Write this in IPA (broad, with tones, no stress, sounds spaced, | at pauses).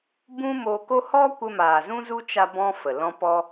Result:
b ũ˦ m o˧ k o˦ h ɔ˦ kʷ ə˧ m aː˨ z ũ˦ z u˦ t͡ʃ a˦ b ɔ̃˦ f ə˨ l ɔ̃˦ p ɔ˧